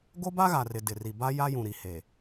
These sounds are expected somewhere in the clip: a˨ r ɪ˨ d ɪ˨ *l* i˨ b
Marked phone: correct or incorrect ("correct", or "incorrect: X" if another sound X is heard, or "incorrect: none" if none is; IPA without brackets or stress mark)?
incorrect: r